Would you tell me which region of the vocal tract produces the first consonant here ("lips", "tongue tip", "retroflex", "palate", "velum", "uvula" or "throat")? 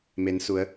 lips